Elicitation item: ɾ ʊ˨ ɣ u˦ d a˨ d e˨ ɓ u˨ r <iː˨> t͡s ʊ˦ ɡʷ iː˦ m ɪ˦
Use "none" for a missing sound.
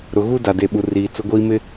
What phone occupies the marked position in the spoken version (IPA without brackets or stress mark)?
iː˨